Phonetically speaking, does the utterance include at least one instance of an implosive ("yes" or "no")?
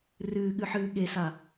yes